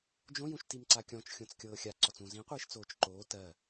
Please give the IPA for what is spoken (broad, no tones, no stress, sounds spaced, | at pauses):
d͡ʒ õ j ũ ʃ t i m ǀ a kʲ ɔ̃ t͡ʃ xʲ õ t͡s kʲ ɤː xʲ a ǀ ɔ t͡s ũ z ĩ qʷ iː ʃ t͡s oː t͡ʃ ǃ oː t ɜ